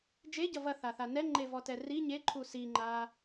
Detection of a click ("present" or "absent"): present